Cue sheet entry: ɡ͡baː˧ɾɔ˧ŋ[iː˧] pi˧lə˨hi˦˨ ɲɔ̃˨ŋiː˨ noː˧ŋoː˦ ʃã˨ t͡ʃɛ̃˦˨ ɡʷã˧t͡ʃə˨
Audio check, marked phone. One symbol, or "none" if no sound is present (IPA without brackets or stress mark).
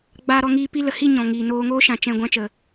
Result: iː˧